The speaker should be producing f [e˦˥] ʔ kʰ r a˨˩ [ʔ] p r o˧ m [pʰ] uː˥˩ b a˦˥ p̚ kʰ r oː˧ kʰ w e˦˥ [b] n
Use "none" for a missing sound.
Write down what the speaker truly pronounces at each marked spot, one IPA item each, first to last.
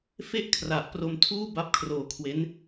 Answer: e˥˩, ʔ, tʰ, none

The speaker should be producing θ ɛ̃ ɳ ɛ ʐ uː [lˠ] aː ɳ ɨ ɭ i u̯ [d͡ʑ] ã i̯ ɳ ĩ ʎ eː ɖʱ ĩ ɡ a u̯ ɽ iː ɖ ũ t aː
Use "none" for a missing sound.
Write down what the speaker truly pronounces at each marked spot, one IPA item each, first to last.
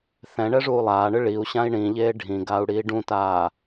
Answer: lˠ, ɕ

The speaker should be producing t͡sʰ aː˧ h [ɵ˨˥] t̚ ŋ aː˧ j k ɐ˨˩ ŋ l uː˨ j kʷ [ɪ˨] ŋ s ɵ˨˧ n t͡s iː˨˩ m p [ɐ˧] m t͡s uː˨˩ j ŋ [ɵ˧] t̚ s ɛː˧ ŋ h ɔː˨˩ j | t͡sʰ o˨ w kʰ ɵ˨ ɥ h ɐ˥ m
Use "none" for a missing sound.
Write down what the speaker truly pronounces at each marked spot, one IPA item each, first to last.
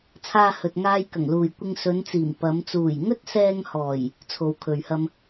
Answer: ɵ˨, ɪ˧, ɐ˨˧, ɵ˥

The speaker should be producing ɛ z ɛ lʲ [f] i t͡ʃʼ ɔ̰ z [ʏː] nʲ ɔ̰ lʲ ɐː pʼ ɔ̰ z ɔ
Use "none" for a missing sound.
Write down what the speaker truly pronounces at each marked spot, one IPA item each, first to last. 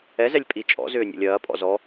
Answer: pʼ, ʏː

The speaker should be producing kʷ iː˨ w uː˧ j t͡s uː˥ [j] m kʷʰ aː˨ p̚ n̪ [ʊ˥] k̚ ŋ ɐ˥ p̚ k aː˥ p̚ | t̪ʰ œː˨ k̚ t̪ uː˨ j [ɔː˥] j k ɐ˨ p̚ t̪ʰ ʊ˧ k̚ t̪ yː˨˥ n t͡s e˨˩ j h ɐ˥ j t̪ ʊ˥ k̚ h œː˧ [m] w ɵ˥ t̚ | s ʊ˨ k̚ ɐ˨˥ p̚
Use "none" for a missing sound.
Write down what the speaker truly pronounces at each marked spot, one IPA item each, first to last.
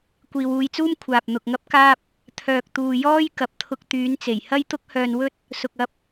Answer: none, ʊ˨, ɔː˥, n

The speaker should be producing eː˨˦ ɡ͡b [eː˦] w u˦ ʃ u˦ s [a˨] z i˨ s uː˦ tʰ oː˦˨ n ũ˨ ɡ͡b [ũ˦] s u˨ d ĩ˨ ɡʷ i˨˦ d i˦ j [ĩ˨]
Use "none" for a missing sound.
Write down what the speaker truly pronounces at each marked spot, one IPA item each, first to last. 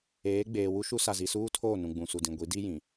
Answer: eː˨, a˨, ũ˨, ĩ˨

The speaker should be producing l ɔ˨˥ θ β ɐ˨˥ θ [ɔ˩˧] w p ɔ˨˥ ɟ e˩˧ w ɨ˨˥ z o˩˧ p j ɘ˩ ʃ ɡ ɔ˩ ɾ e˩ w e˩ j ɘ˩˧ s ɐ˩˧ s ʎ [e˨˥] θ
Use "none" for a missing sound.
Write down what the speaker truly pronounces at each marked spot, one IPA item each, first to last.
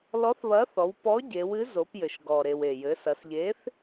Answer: ɔ˩˧, e˨˥

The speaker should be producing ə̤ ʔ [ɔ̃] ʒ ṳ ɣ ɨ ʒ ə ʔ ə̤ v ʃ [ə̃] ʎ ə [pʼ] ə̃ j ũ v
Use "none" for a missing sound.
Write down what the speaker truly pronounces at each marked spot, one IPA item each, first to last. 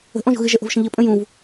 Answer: ɔ̃, ə̃, pʼ

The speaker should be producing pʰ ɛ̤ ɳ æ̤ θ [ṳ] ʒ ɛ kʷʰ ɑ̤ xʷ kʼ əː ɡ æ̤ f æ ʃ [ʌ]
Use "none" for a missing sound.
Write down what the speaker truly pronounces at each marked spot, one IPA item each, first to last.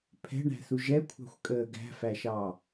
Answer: u, ɑ

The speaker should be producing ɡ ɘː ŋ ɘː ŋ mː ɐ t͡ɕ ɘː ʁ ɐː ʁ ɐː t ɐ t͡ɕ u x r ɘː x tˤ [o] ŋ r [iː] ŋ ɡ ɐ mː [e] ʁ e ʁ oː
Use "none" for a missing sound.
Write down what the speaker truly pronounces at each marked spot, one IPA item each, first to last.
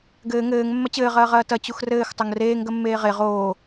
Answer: o, eː, eː

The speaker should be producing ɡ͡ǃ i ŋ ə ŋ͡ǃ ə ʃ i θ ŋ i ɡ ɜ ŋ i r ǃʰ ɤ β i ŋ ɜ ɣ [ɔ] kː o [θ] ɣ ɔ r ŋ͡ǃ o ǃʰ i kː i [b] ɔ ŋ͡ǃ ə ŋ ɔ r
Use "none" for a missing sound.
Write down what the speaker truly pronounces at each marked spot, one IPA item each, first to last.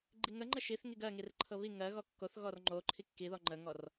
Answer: ɔ, θ, ð

